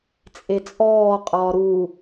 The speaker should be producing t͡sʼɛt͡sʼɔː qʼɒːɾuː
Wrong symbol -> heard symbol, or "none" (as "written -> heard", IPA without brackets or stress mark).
ɛ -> e